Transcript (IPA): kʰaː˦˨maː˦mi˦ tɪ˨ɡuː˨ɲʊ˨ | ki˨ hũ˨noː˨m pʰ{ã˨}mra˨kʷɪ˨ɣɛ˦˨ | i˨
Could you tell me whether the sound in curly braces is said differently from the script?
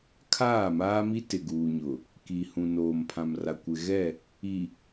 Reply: no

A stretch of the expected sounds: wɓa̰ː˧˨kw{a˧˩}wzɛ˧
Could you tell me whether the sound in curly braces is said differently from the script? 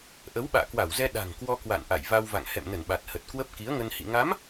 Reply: no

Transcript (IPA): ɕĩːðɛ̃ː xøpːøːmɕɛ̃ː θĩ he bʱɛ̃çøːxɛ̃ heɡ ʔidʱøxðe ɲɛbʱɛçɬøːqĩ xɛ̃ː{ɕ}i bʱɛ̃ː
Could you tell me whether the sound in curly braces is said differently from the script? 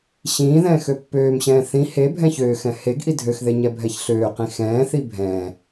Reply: yes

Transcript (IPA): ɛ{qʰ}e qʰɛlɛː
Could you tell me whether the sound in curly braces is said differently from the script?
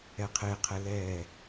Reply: no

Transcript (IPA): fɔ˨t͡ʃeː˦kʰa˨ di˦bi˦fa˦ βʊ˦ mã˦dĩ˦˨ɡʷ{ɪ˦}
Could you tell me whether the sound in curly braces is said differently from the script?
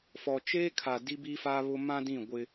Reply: no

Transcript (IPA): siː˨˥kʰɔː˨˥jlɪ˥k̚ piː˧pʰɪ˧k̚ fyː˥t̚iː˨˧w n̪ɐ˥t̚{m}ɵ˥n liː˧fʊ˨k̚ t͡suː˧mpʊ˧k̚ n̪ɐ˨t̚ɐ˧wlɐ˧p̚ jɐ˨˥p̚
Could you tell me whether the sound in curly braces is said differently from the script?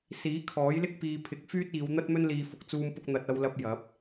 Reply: no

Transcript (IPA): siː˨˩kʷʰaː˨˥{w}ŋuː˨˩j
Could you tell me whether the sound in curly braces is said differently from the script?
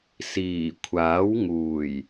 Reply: no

